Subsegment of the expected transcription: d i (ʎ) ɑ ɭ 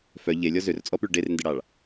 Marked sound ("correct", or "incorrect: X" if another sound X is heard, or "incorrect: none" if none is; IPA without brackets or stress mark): incorrect: ɽ